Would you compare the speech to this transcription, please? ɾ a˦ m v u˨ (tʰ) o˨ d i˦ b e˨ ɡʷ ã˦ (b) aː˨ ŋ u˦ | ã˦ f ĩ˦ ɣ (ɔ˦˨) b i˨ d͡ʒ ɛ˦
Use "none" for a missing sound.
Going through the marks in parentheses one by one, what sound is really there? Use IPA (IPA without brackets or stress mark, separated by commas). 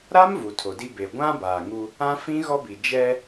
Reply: tʰ, b, ɔ˦